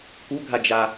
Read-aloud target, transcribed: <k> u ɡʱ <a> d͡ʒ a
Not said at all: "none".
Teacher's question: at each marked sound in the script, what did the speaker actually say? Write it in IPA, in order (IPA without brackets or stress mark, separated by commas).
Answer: k, a